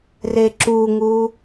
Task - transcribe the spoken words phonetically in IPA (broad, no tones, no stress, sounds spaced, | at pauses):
r e ǁ u ŋ u